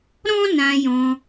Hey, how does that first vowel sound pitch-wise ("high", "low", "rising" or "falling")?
high